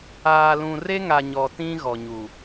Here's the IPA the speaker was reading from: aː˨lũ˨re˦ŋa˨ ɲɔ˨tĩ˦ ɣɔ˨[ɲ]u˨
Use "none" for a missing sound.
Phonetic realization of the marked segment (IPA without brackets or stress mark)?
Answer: ɲ